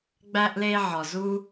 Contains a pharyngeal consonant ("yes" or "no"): yes